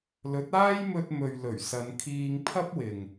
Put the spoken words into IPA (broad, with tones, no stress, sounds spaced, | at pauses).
l ɵ˨˥ t̚ aː˥ j m ɵ˧ t̚ m ɵ˨ ɥ l ɵ˨˩ ɥ s ɐ˨˧ n kʰ iː˧ ŋ pʰ ɐ˥ p̚ w ɪ˨ ŋ